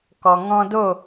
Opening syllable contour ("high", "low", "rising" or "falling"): low